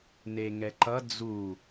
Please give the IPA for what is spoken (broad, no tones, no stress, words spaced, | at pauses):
neŋɛǃʌ d͡zu